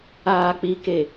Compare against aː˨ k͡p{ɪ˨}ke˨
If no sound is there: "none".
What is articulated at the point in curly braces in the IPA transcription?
i˨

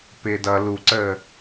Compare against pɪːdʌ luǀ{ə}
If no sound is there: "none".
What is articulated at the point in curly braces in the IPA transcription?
əː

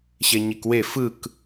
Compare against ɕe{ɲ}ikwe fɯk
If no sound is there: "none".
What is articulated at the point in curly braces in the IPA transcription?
ɲ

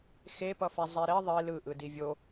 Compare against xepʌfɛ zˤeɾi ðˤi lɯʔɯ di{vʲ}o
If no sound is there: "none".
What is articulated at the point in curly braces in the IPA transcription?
vʲ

